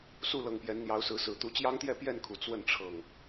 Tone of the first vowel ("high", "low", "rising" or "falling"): falling